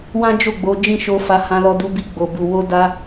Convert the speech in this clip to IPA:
w ã˦ d͡ʒ o˦˨ ɡ͡b o˨˦ d͡ʒ ĩ˦˨ ʃ o˧ f a˧ h ã˧ l ɔ˧ d u˧ b i˧ ɡ͡b o˨ b u˨ w o˧ d a˧

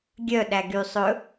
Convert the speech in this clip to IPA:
ɡʲ œ ɗ æ ɡ y sˤ ɵ

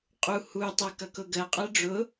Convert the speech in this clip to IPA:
qʼ u h u tˤ ɤ k ʌ k ʊ ɡ ɜ qʼ ɜ ɖ͡ʐ ʊ

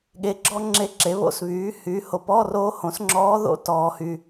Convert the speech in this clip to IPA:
ɠ e˧˥ ɡ͡ǁ ɔ˥ ŋ͡ǁ e˦˨ ǁ e˩˥ β o̰˦˨ s β yː˩˥ h yː˩˥ h o˨ p ɔː˧˥˧ r oː˧˥ h õ˩˥ s ŋ͡ǁ ɔː˧˥ ð o̰˧˥˧ t ɔː˨ h y˨

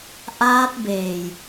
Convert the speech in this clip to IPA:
ʔ aː˦˥ t̚ b eː˨˩ j

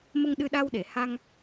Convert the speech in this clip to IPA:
m ə˧ ŋ ɗ ɨ˧ ɗ a˧ w ɗ e˨˩˨ h a˧ ŋ

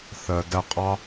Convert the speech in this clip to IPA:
θ ɜ˨ d æ˧ qʼ ɑ˦

